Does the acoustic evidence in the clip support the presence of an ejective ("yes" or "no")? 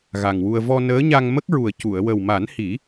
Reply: no